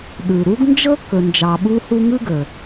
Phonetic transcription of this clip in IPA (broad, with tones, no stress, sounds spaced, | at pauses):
ɗ ɯ˩ ɾ u˥ ɡ n d͡ʒ ɤ˥ k ɵ˨ n d͡ʒ ɑ˨ ɓ u˦ h u˦ ŋ ɯ˥ ɡ ə˩